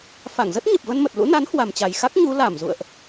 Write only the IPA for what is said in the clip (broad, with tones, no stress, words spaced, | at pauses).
fa˧˩ŋzə˦˥t̚ɲə˨˩p̚ və˧nmə˨˩t̚lṵ˧˥na˨˦n hwa˨˩mt͡ɕa˨˩jxa˦˥k̚ ɲu˨˦ la˧˩mzṵ˧˨ə̯ʔ